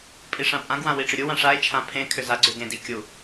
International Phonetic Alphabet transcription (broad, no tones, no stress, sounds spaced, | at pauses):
pʼ i ʂ ã pʼ ã ɡ w ã w i ʈ͡ʂ ʏ ɾʲ u w ã ʂ a e̯ t͡ʃʰ ã pʰ ẽ kʰ ʏ z a ɡ͡ǀ ʏ ɡ ẽ d i kʲ u